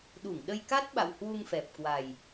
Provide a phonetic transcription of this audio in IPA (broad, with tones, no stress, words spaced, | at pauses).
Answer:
ɗu˧˩ŋɗə˧jka˦˥t̚ ɓa̰˧˨whwu˧ŋfɛ˨˩p̚kwa˨˩j